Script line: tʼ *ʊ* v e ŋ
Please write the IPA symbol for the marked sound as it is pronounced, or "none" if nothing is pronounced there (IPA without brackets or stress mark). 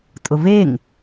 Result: ʊ